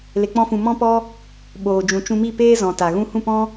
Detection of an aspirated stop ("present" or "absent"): absent